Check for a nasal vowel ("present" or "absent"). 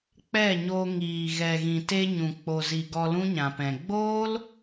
present